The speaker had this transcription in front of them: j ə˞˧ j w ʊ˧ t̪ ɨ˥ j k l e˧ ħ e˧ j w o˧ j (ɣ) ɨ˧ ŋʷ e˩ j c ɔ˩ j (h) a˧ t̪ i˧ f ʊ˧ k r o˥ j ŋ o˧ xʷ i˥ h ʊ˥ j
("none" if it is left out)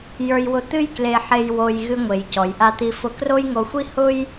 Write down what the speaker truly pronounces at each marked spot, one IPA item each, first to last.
ɣ, ʔ

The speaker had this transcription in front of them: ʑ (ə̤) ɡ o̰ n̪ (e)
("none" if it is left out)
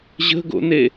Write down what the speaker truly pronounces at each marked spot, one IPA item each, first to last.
ə̤, e

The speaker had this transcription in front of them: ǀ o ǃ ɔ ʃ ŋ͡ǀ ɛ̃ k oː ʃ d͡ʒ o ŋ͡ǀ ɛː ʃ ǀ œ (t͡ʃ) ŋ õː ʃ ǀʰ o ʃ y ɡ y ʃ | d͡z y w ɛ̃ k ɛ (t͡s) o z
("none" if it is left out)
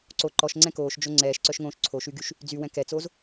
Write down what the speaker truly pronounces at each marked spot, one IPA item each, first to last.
ʃ, t͡s

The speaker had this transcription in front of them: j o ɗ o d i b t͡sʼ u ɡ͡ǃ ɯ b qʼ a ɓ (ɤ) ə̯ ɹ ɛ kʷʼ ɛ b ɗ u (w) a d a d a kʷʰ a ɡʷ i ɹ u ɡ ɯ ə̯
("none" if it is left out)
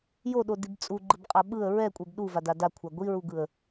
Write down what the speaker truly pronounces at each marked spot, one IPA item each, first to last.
ɯ, v

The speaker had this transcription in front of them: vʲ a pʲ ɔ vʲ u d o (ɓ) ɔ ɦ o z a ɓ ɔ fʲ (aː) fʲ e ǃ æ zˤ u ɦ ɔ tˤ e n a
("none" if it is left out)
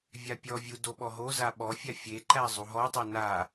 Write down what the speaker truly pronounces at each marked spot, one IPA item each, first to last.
ɓ, a

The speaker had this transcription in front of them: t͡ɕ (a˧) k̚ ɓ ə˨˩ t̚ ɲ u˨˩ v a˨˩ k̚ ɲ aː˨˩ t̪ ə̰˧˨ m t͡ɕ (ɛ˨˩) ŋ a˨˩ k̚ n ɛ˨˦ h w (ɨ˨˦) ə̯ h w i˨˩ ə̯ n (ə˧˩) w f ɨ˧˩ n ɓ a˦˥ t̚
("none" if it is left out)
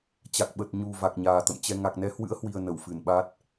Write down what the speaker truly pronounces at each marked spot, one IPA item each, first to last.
a˨˩, ɛ˧, ɨ̰˧˥, ə˧˩

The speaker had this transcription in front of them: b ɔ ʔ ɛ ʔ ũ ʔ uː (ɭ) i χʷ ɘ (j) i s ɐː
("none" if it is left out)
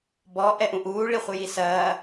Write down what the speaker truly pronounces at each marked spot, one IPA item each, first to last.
ɭ, j

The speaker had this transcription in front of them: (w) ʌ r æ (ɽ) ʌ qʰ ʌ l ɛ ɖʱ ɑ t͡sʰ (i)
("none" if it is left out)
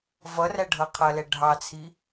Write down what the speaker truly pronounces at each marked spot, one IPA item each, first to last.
v, ɖʱ, i

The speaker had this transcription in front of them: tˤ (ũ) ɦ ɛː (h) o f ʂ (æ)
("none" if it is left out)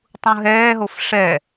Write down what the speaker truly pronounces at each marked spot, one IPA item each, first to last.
ũ, ɦ, ɛ

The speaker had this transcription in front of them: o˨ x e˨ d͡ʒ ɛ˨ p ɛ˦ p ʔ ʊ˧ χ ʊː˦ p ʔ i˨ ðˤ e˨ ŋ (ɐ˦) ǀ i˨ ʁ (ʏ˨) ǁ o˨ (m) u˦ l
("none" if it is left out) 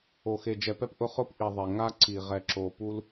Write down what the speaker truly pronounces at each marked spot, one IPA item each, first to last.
a˦, ɛ˨, p

